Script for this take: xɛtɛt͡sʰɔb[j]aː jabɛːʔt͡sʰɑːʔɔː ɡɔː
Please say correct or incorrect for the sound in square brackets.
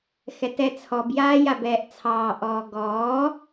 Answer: correct